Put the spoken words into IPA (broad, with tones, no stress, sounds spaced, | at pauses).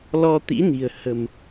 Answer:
l ɔ˧ t̪ ḭ˧˥ n i̤˨˩ ə̯ h ə̤˨˩ m